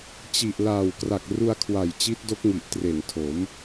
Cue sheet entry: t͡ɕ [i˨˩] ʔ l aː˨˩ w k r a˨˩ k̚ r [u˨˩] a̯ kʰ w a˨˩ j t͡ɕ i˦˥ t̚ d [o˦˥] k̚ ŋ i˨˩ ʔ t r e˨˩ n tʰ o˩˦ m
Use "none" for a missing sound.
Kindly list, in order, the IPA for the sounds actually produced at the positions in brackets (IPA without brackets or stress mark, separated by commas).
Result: i˨˩, u˧, o˦˥